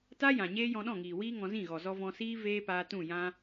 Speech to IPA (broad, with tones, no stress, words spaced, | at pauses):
ta˦jã˨ ɲeː˦jɔ̃˧ɗɔ̃˦˨ ŋiː˨wiː˦ ŋɔ̃˧zĩ˦˨ɣɔ˨ zɔ˧vɔ̃˧siː˦ veː˦paː˧ tũ˦˨jã˦